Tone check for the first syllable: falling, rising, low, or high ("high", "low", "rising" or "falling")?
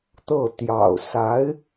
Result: falling